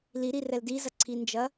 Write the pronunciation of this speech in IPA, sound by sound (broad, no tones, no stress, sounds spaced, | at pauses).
l i ɾ i r ɛ l d i z ɐ ǀʰ i n d͡ʒ ɐ